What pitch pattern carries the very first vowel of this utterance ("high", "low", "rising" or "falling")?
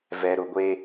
low